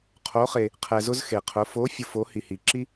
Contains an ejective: no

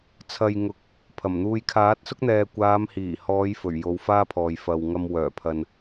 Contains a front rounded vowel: yes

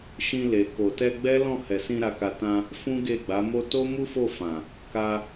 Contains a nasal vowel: yes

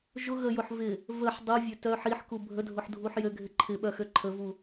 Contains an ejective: no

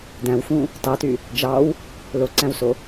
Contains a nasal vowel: yes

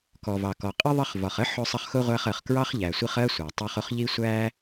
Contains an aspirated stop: no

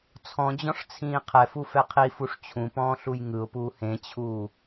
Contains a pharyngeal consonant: no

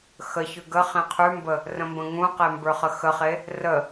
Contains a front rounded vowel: no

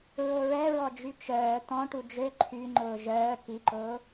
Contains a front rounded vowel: yes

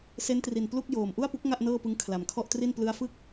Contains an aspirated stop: yes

